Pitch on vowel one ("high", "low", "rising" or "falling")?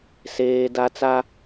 high